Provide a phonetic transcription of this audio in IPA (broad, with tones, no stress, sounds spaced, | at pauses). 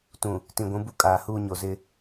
t ũ˨ | t ĩ˨ ɡʷ ũ˨˦ b u˦ kʼ aː˨ h uː˦ ɲ o˨ z ɪ˦